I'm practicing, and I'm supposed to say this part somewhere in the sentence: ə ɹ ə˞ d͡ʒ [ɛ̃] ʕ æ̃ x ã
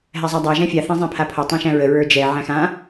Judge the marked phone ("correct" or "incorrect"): incorrect